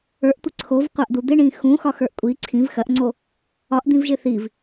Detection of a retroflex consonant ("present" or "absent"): present